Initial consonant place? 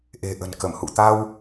glottal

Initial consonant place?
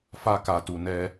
labial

